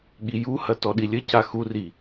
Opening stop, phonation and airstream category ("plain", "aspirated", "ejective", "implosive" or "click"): implosive